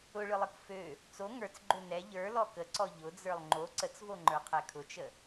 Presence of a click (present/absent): present